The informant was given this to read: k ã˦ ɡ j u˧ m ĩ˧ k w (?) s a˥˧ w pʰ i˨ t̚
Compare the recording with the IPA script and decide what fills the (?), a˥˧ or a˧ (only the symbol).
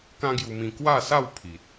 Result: a˥˧